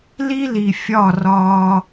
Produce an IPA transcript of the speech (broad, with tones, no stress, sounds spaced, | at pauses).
l i˦ l i˨ fʲ ɒ˦˨ r ɒː˧